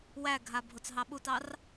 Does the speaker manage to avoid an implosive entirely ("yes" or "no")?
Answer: no